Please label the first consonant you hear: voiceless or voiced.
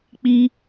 voiceless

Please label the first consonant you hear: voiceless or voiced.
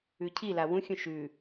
voiceless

